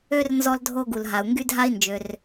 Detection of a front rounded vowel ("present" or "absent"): present